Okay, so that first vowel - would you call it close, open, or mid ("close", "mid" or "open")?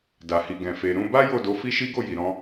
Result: open